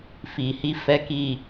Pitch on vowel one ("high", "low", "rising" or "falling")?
low